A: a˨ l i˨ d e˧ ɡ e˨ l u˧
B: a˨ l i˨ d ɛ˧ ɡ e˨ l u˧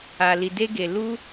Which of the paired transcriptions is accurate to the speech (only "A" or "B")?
A